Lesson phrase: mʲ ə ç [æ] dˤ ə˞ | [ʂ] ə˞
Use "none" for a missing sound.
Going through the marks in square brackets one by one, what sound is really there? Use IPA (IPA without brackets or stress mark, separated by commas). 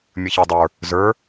æ, z